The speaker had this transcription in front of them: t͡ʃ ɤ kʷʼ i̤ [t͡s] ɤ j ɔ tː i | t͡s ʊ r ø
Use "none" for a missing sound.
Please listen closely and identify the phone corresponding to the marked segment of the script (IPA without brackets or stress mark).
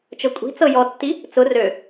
t͡s